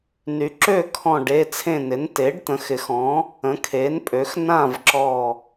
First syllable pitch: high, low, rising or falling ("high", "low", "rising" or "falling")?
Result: rising